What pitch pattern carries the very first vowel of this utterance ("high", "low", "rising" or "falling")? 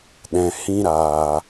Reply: low